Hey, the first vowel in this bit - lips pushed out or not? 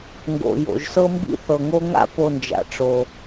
yes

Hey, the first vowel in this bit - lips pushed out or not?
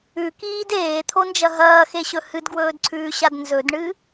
yes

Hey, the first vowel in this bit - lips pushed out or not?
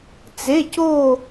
no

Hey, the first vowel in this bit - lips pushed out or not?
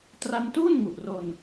no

